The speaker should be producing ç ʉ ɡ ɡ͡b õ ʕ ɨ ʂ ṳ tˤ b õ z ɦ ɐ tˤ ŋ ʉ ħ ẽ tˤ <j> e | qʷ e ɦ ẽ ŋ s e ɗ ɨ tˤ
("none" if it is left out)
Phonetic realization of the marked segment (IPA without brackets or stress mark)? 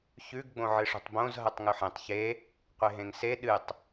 ç